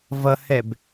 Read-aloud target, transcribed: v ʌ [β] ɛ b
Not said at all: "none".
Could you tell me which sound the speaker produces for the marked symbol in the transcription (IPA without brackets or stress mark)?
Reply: h